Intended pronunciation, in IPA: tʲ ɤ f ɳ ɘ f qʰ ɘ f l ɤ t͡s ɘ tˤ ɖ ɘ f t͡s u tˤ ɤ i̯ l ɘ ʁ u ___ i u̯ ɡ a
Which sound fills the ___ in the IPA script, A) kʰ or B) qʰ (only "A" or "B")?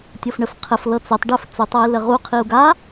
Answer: B